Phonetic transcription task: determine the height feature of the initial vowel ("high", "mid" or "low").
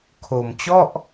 mid